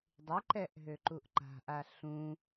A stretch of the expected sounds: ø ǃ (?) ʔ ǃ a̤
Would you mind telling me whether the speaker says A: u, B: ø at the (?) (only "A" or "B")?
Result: A